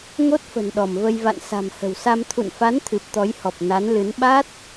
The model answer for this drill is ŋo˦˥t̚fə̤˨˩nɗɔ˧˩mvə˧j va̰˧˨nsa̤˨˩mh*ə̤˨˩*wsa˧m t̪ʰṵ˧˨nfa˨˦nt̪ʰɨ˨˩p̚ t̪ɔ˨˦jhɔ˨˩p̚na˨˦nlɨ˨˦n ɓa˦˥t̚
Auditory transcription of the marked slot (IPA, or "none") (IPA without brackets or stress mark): ə̤˨˩